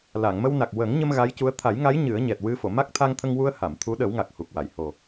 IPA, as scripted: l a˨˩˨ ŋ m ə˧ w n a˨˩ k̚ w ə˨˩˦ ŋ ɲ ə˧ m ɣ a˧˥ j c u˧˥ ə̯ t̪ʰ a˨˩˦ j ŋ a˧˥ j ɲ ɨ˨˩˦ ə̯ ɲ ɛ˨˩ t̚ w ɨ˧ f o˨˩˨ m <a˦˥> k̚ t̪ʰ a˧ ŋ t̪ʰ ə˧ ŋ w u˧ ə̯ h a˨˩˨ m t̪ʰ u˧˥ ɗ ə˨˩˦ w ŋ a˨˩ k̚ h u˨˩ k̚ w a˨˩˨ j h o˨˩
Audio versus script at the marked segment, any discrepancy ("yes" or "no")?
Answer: no